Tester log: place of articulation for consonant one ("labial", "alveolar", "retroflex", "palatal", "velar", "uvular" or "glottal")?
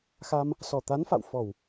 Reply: velar